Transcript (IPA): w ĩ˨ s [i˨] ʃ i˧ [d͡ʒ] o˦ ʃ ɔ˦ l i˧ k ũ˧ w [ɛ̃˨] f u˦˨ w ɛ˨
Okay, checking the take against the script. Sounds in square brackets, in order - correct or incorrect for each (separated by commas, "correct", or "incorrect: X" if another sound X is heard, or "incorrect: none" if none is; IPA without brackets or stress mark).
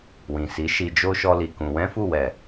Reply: incorrect: i˨˦, correct, incorrect: ɛ̃˦